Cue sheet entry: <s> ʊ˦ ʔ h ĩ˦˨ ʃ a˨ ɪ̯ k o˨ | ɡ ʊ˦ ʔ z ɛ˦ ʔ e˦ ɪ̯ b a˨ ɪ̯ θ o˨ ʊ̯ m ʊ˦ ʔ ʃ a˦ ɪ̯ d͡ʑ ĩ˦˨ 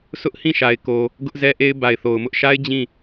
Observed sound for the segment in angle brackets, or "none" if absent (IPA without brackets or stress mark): s